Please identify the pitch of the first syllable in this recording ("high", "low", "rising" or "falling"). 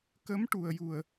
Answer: rising